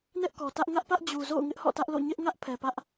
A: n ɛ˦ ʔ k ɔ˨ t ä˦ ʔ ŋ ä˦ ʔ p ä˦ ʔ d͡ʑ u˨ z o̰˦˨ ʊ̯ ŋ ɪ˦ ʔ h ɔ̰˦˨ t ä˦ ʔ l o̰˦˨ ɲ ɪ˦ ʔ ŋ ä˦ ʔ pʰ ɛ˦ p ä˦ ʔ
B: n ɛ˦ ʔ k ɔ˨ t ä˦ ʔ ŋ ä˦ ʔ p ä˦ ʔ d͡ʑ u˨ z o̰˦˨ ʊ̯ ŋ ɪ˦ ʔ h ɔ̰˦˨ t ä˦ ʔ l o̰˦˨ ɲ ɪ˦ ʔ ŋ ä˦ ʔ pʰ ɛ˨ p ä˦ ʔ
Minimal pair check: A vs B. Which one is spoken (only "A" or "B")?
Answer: B